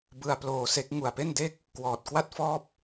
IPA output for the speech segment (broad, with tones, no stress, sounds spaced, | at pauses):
b ɯ˧ a̯ p l oː˧ s e˦˥ k̚ ŋ u˨˩ a̯ p e˥˩ n d e˥˩ k̚ | k w ɔː˨˩ t̚ k w a˥˩ t̚ f ɔː˥˩ p̚